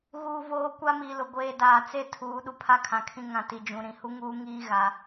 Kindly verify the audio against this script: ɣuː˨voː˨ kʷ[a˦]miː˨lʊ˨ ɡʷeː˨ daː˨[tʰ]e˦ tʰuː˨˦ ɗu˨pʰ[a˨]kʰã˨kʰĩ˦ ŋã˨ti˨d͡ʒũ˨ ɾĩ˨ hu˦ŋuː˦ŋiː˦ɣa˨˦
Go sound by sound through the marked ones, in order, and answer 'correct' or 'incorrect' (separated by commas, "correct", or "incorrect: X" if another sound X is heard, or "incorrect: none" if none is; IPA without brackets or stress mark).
correct, incorrect: t͡s, incorrect: a˦